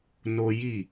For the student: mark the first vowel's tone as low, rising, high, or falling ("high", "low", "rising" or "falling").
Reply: high